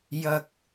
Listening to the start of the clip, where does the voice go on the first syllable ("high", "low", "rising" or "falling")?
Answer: low